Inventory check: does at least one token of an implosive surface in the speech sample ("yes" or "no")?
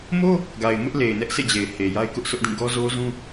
no